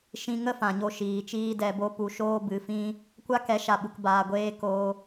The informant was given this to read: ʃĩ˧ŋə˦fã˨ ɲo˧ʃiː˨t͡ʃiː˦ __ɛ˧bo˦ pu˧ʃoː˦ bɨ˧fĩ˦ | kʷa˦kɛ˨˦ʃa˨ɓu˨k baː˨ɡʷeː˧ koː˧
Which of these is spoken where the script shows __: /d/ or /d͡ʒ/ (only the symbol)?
d